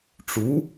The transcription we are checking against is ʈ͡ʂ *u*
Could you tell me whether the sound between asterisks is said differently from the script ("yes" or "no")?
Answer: no